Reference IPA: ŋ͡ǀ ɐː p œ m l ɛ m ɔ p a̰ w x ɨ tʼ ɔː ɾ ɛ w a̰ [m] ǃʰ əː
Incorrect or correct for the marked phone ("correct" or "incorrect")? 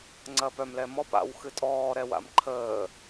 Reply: correct